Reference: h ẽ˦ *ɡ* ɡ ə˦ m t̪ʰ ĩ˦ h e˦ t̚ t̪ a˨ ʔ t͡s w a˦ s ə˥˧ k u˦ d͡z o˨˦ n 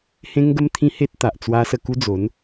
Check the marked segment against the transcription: incorrect: ŋ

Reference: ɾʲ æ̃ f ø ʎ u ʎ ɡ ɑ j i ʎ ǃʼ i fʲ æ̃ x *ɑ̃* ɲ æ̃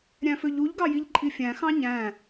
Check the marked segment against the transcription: correct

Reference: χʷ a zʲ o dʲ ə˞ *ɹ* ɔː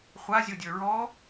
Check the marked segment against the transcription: correct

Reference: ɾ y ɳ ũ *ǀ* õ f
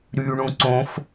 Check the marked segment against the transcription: correct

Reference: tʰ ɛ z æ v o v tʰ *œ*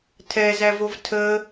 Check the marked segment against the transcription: incorrect: ə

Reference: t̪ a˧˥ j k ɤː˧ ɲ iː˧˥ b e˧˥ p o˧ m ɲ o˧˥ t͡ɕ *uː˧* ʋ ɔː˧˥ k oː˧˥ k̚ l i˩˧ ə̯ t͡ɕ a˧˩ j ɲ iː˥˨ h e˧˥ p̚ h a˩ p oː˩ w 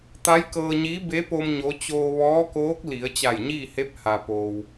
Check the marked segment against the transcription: incorrect: oː˧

